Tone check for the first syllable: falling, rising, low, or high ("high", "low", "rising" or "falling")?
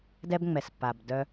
high